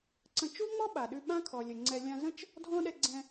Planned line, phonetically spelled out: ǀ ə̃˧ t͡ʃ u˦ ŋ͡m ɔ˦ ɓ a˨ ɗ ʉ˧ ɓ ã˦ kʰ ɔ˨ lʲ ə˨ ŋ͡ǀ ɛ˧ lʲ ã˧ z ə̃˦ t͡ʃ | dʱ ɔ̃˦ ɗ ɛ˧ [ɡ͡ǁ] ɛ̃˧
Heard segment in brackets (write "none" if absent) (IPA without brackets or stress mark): ɡ͡ǀ